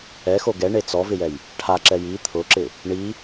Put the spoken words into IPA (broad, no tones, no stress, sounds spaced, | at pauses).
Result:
ɛ x o ɡ ɛ ɳ e t͡s ɔ v ɪ j ɛ j | ʈʰ a ǁ ɛ j i t̪ʰ ʊ ǁ ɪ | ɳ i